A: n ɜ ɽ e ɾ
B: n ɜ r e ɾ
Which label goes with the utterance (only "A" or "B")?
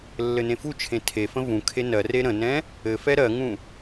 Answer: B